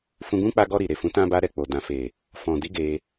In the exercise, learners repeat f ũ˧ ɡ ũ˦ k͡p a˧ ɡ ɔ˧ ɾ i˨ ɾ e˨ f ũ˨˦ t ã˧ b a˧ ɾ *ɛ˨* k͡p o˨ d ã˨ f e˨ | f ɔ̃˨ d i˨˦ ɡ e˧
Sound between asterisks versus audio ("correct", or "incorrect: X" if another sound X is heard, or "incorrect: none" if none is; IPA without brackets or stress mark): correct